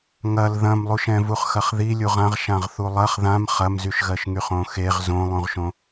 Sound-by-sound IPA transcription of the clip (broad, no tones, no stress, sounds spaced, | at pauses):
ŋ ɐ l ð ɐ̃ m lˠ u ʃ ɛ̃ v u χ x ɐ χ ð i lʲ u ʁ ã ʁ ʃ ã ʁ θ u lˠ ɐ χ ð ã m χ ɐ m z y ʃ ɣ ɜ ʃ ŋ y χ õ x e ʁ z õ lˠ ũ ʁ ʃ õ